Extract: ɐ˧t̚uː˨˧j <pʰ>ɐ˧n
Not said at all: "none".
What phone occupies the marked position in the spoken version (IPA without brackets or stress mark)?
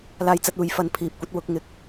f